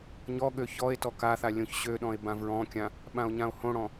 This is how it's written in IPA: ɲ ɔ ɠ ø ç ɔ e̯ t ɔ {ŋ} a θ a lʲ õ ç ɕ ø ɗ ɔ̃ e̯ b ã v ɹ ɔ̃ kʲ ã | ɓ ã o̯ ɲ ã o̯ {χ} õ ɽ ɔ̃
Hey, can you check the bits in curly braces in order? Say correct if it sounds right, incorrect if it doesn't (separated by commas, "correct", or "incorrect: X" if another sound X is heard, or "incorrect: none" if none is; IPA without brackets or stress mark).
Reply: incorrect: k, incorrect: h